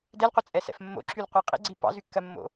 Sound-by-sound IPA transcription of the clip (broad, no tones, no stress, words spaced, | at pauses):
dɛlqʷət͡sʼɛsɛ̰f mːo̰ǁylqʷɑ qʼḭɡ͡ǀi pɑ̰zykːɜmːo̰